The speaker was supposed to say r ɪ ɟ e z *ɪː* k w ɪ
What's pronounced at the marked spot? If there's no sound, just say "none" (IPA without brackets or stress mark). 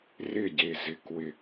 ɪ